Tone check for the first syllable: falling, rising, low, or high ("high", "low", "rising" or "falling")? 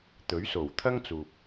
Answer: rising